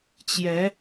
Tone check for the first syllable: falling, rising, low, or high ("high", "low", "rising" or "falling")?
rising